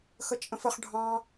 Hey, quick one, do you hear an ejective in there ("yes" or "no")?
yes